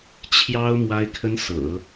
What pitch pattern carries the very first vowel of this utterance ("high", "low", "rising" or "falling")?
high